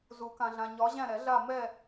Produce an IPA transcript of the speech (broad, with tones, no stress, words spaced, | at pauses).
zu˨˩˦kã˨ɮã˨ ɲɒ˨˦ʑæ̃˦˨ɾɛ˨˩˦ɮa˦˨ mɛ˦˨